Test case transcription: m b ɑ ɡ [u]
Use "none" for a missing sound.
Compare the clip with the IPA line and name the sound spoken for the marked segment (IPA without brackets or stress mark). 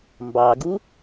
u